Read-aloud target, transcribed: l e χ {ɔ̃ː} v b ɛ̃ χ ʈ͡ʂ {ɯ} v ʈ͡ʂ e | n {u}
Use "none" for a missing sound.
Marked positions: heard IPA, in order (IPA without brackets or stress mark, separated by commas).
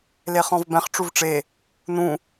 ɔ̃, u, ũ